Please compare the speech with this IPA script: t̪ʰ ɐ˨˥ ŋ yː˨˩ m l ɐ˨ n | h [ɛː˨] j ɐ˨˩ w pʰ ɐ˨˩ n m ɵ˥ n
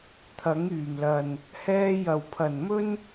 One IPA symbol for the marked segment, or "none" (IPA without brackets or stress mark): ɛː˧